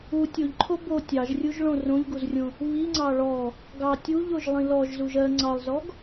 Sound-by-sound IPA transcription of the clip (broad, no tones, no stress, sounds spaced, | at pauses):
u tʲ o ʎ ǃʰ o b o tʲ ɑ ʒ rʲ u ʒ ɭ õ r õ ʎ ɡ u z rʲ õ | β i ŋ͡ǀ ɑ ɭ ɔ | ɡ ɑ tʲ u ʎ o ʒ lˠ ĩ l ɔ ʒ z u ʒ ɜ ŋ͡ǀ ɑ lˠ z ɔ ɡ